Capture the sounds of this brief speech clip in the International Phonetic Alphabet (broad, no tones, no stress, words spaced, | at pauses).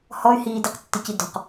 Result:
hɔy̯hiːdiqtːɪ cidɔ̤q